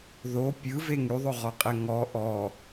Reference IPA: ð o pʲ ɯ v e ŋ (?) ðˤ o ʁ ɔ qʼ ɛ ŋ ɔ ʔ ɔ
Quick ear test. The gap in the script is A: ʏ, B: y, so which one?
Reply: B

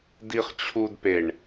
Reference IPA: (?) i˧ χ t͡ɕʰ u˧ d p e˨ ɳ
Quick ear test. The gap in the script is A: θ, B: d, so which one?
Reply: B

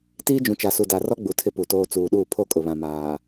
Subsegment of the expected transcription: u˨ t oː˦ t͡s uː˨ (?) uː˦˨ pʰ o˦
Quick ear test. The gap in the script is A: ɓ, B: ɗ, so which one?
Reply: B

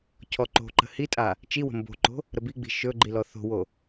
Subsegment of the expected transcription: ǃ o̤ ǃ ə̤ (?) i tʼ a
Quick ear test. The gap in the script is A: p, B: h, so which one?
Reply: B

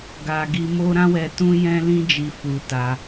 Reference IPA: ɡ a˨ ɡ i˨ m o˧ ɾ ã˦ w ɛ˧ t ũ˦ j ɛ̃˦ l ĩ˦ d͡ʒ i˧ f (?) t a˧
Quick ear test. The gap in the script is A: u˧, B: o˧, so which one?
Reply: A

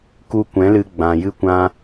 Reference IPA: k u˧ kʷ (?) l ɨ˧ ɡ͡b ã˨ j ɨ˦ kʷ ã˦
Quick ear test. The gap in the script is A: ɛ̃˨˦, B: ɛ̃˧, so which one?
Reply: A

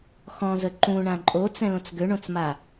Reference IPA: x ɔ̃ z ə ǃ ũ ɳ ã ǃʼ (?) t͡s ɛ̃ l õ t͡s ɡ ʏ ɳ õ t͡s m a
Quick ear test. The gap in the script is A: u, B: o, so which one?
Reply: B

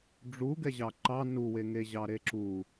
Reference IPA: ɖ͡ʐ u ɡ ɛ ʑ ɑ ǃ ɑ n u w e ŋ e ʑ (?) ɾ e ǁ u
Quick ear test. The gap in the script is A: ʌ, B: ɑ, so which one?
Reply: B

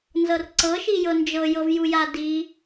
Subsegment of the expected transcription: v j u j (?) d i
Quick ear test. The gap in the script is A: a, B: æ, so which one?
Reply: A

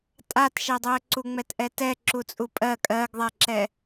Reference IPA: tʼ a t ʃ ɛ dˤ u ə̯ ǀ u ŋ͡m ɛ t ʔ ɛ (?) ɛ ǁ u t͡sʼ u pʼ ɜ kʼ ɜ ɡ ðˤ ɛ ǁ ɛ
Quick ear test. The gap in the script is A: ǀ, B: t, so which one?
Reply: B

